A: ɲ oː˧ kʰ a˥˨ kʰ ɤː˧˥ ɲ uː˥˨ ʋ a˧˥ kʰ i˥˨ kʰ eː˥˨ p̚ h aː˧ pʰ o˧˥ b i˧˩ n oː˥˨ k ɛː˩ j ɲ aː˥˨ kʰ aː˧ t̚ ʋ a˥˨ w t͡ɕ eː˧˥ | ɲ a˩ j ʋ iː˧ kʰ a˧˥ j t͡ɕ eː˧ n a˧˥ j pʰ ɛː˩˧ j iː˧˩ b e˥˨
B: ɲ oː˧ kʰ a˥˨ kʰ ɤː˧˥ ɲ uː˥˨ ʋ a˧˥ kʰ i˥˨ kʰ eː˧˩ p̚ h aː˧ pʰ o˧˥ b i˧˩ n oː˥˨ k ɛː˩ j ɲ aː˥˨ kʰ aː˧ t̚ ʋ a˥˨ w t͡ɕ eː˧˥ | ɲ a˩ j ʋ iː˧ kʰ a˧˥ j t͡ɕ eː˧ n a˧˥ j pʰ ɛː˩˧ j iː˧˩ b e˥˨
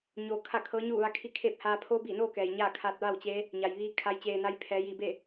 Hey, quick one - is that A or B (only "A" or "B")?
A